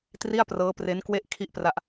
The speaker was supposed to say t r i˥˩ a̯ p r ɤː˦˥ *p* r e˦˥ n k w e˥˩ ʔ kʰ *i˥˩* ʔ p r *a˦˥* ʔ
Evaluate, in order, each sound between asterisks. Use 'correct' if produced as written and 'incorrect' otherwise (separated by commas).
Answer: correct, correct, correct